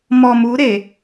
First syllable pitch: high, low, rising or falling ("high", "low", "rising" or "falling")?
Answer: low